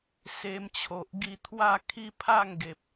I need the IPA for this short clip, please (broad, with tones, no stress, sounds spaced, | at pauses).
s e˧ m t͡ɕʰ o˨ ʔ ɡ i˧ t̪ʰ w a˥˧ kʰ i˦ pʰ a˥˧ ŋ ɡ e˨ p̚